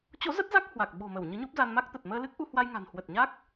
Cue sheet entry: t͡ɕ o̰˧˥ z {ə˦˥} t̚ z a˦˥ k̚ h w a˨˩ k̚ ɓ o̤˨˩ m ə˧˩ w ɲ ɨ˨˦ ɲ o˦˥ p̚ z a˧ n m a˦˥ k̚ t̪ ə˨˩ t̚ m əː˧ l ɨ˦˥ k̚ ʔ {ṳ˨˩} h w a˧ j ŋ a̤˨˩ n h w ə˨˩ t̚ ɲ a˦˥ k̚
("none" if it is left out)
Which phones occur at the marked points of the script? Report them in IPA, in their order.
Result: ə˦˥, u˧

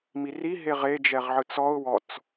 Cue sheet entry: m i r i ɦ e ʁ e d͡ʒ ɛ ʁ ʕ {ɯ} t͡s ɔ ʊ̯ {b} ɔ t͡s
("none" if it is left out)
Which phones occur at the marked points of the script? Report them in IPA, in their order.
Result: ɯ, w

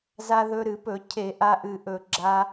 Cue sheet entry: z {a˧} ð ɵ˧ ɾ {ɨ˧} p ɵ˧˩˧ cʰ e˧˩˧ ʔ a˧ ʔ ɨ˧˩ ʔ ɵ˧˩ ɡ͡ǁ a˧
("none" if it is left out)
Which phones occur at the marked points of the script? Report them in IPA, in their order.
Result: a˧, ɨ˧˩˧

